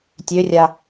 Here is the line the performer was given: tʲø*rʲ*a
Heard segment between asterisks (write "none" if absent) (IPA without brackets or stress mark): rʲ